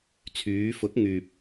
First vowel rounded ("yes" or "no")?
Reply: yes